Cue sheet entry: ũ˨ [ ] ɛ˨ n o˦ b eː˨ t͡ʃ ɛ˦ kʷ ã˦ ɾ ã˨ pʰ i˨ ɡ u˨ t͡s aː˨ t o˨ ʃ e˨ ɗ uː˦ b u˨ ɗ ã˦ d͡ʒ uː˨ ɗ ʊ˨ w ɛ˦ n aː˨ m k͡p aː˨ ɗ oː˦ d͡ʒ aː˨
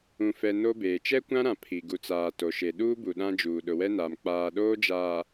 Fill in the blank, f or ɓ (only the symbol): f